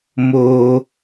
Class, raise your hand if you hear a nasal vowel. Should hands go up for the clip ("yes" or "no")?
no